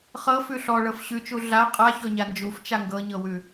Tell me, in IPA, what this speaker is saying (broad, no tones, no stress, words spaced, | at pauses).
χɤfʉ ɬɔɭɤf ɕʉt͡ʃu ɮa qʼaçɔɲa nd͡ʒuft͡ʃa ŋɡɤɲɤwʉ